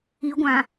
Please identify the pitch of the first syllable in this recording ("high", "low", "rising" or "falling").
rising